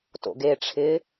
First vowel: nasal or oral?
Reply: oral